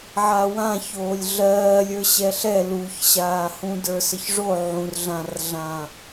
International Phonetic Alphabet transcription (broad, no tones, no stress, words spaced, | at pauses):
ʕawã çoːlʲɮɜːlʲə˞ ɕɛɬɛ luçɕaːhũ də˞səçʐo ʕũrɮãrɮã